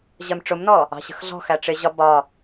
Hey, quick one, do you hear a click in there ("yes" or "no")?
no